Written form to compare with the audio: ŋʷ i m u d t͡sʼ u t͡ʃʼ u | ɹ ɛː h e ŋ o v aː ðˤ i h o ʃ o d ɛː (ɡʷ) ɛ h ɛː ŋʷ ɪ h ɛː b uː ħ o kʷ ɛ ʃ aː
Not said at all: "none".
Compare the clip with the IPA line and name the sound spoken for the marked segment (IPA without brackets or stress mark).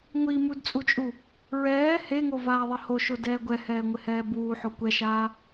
ɡʷ